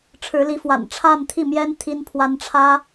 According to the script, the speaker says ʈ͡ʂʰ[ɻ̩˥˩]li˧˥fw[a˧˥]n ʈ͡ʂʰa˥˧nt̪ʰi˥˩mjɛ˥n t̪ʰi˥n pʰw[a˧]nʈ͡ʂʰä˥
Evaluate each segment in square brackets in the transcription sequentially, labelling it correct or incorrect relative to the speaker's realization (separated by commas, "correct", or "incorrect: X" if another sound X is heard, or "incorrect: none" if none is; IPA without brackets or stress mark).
incorrect: ɻ̩˧˥, incorrect: a̰˨˩, incorrect: a˥